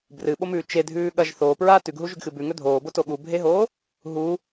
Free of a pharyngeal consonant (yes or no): yes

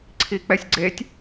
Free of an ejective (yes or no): yes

